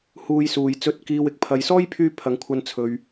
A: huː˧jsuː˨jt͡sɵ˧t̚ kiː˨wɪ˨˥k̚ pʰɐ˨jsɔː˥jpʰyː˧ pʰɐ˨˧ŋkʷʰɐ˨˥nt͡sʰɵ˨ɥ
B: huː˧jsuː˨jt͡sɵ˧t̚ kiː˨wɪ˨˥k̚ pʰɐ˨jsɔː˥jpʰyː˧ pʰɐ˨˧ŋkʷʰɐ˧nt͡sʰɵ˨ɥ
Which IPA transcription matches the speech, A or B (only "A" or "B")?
B